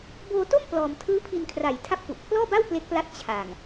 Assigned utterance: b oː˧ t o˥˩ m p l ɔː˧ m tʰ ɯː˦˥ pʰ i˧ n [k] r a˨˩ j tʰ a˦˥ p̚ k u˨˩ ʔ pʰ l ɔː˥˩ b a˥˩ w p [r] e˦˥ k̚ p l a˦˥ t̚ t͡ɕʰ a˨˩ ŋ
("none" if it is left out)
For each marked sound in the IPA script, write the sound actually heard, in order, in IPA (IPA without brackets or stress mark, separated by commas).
kʰ, l